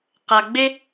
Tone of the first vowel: low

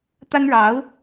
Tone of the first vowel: high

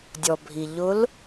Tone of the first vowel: low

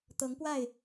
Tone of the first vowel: rising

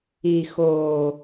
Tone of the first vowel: low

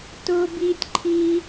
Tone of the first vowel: high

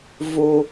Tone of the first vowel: low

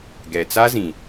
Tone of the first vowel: low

